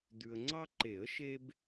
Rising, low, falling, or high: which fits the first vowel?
low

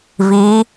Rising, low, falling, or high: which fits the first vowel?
rising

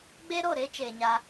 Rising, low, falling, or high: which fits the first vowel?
high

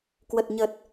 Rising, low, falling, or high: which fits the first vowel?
low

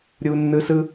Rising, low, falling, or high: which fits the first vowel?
high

